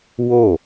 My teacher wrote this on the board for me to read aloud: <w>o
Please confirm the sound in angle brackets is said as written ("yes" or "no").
yes